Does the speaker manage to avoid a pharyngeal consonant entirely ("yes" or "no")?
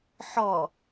no